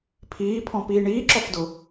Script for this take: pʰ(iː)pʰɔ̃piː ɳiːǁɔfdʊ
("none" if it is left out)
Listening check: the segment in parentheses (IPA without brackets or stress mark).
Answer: iː